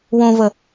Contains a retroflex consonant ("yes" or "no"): no